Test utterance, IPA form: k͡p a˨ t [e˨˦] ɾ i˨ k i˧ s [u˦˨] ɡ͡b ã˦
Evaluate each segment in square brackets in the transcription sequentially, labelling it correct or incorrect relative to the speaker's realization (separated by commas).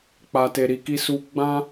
incorrect, incorrect